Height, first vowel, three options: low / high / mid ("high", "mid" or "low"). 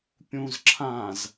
high